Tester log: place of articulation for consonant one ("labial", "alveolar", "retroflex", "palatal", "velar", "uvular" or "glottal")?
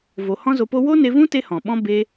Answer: labial